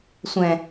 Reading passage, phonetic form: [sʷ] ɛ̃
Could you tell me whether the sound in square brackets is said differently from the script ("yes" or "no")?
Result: no